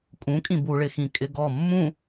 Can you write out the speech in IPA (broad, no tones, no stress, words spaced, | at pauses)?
kʼũkʼĩ buɭɪxĩ kʼɪɡɔ mːũ